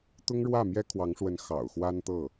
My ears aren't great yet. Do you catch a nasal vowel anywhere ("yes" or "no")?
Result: no